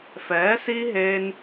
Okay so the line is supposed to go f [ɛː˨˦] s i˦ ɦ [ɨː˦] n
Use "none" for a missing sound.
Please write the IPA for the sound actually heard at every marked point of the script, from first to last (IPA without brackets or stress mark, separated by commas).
ɛː˨˦, eː˦